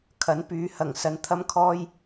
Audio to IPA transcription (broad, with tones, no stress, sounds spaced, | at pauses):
kʰ ɐ˨˥ n p yː˨˧ h ɐ˨˩ ŋ s ɐ˨ n t̪ʰ ɐ˧ m kʰ ɔː˧ j